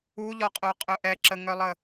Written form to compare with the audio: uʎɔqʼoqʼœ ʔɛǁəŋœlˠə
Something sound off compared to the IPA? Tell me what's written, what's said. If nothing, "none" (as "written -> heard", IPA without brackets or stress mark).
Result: none